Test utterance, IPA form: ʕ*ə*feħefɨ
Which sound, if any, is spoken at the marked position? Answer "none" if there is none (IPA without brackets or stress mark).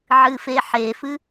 ɨ